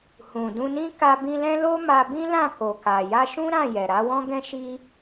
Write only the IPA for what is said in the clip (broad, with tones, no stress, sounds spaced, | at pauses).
h ũ˨ d ũ˧ n ĩ˦ k a˧ b ĩ˧ l ɛ̃˦ l o˦ m a˧ b ĩ˦ l ã˦˨ k o˨ k a˨ j a˧ ʃ ũ˦ ɾ ã˦˨ j ɛ˨ ɾ a˨˦ w ɔ̃˦ ɡ ɛ̃˦ ʃ i˦